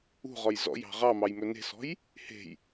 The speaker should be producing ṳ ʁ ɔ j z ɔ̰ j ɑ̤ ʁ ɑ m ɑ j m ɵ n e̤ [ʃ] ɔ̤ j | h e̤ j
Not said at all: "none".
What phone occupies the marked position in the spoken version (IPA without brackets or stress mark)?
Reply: s